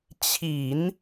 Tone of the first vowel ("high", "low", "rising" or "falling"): low